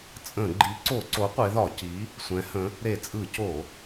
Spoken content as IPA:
t͡sʼə̃˧˩˧ ɡ͡ǃi˨˥ǀo˧˩˧ǀo˨˥ qʷe˨˥ðɒ˧˩˧ ci˨˥ | sʷɛ̃˨˥hə̃˨˥ | ɾe˧˩˧t͡sʼɯ˧˩˧ co˧˩˧

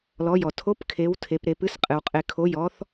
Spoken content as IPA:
lɔ˩˧jɔ˩ tʰo˨˥pkʰe˩˧w tʰe˩˧p ɾe˩˧pɨ˨˥sqʼɨ˩wqʼe˩˧ kʰo˩˧jɔ˩˧θ

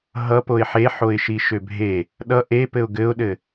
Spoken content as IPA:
ɦʌpoɪ̯ ħeħoɪ̯ʃi ʃøbʱe | ɗʌ ʔepɘʊ̯ ɡɘʊ̯ɗɘ

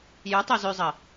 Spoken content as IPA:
jœ tˤozøzˤə

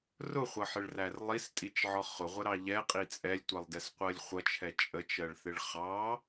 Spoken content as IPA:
rʊχʷʌħɪɭrær lˠistʼit͡ʃʕɒ χʊʁʷəɾɑ ʎɛqʼi t͡sʼɛlʲtʷɛlˠdɛsqʷɜlʲ χʷʌt͡ʃʰɛ t͡ʃʼət͡ʃɜɭθɪɭ χɑ

